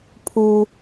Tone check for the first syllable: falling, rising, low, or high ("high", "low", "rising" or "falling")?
low